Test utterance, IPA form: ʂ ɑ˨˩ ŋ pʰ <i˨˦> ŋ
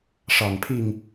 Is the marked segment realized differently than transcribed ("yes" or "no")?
yes